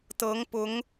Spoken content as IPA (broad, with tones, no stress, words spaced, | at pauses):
t̪ɤ˧˥ŋpʊ˧˥ŋ